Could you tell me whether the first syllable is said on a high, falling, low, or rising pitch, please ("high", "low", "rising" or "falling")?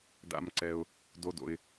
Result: low